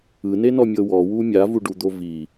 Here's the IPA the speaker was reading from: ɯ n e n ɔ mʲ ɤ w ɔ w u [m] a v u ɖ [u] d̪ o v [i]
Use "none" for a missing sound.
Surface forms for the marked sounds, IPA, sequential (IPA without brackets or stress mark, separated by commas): mʲ, u, i